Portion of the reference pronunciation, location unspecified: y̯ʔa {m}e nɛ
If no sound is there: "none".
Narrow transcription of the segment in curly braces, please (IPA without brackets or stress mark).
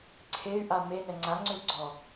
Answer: m